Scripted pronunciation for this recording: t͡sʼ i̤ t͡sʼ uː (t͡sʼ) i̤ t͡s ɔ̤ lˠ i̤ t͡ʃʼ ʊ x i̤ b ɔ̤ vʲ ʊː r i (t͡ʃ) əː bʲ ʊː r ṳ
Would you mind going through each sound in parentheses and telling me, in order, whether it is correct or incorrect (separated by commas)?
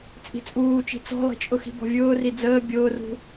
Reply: incorrect, incorrect